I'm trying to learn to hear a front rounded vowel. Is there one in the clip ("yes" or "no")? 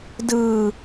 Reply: no